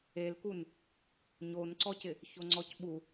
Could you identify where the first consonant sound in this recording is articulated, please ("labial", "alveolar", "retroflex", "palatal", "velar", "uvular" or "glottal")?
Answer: alveolar